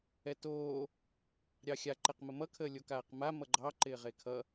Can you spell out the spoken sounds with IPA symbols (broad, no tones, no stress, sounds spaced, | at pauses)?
ɛ t oː | ɾʲ ɑ xʲ a ǃ ɛ q m ə m ʌ kʰ əː lʲ o k aː q m a m ʌ ɡ͡ǃ ɑ ǃ ɪː ʁ e kʰ ʌ